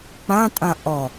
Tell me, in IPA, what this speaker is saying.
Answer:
k͡p ã tʼ ã ʔ ɔ

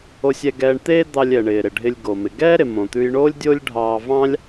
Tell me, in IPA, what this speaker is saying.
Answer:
o˧ sʲ ɛ˧ ɡ ɛː˧ ɳ t̪ eː˥ d̪ ɑ˧ lʲ ɛ˩ ɳ ɪː˩ ɾ ɪ˩ ɖʱ ɪ˧ lʲ ɡ o˩ m ɪ˩ ɡ ɛː˥ ɾ ɪ˩ m õ˩ t̪ ʉ˧ j ɳ oː˥ lʲ dʲ o˥ lʲ ɖʱ ɑː˧ v ɑ̃˥ lʲ

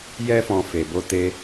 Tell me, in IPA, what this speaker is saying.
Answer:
j ɛ˦ f ɔ̃˧ f e˨ b o˧ t e˧

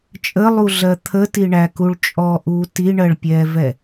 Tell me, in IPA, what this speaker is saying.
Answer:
t͡ʃʼ ə lˠ u ɮ ɜ t̪ʰ ə t i ɳ æ k u ɭ t͡ʃʼ ɔ ʔ uː t i ɳ ɜ ɭ pʲ ɛː v ɛ

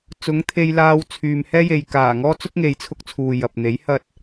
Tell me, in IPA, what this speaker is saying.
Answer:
t͡s ʊ˨˥ ŋ t̪ʰ e˧ j l aː˧ w t͡sʰ yː˨ m h ɛː˥ j e˨ j k aː˨˩ ŋ ɔː˥ t͡s ʊ˥ k̚ ŋ e˨˧ j t͡sʰ ʊ˧ k̚ t͡sʰ uː˨ j ɐ˨ p̚ n̪ e˨˥ j h ɐ˥ t̚

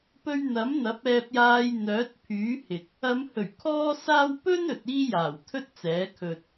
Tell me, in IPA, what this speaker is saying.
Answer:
p ɵ˧ ɥ n̪ ɐ˨˥ m n̪ ɐ˨˥ p̚ ɛː˧ p̚ j aː˧ j n̪ œː˨˥ t̚ pʰ yː˨˥ h ɪ˨ k̚ | ɐ˨˧ m h ɵ˨˩ ɥ kʰ ɔː˥ s aː˥ w p ɵ˥ n ɵ˨ t̚ iː˥ j aː˨˩ w t̪ʰ ɵ˥ t̚ t͡s ɛː˨˥ kʰ ɵ˧ t̚

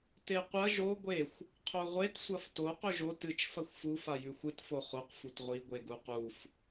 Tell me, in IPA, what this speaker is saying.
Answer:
t e qʷ ɐ ʒ o ɡʷ e xʷ | qʰ o ʁʷ e t sʷ ɐ f t o q ɵ ʒ o t ɨ t͡ʃ f ɐ xʷ f u f a j ʉ xʷ ɨ t f o χ o q f u t ʁʷ i ɡʷ e ɡ u q u f

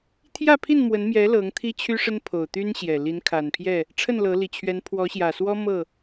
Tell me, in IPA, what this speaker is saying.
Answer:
t̪ʰ j ä˥˨ pʰ i˥˨ n m w ə˨˦ n m j ɛ˨˦ l ɤ˨˦ ŋ t̪ʰ i˦ t͡ɕʰ y˦ ʂ ə˦ n pʰ o˨˩ ʊ̯ t̪ y˦ n ɕ j ɛ˨˩ l i˨˦ n kʰ a˨˩ n pʰ j ɛ˥˨ | ʈ͡ʂʰ ə˥˨ n l ɤ˨˦ l i˨˩ t͡ɕʰ ɥ ɛ˨˦ n pʰ w ɔ˨˦ ɕ j ä˨˩ s w ɔ˦ m ɤ˥˨

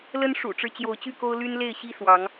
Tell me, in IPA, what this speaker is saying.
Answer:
l ə˦ n ʂ ṵ˨˩ ʈ͡ʂ ɻ̩˦ t͡ɕ j o˨˦ ʊ̯ t͡ɕ y˥˨ k o˦ ʊ̯ l y˦ n l e˥˨ ɪ̯ ɕ i˦ s w ɑ˨˦ ŋ

